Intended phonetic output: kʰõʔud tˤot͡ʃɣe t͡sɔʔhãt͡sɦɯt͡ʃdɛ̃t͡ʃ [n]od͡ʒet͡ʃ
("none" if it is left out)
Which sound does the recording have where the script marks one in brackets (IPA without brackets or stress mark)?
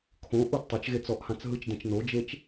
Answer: n